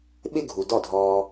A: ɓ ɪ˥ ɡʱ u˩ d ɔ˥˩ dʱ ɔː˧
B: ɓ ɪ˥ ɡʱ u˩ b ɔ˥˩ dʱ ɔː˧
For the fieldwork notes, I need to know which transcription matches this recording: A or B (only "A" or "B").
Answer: A